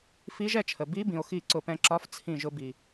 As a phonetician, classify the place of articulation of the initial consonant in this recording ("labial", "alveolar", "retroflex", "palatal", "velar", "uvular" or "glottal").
labial